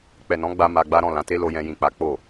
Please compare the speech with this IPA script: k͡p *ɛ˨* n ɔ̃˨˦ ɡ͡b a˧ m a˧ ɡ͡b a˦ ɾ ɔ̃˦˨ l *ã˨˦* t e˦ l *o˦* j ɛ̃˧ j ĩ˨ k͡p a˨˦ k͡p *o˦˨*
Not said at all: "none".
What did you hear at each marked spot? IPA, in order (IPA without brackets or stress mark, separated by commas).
ɛ˨, ã˨˦, o˧, o˦˨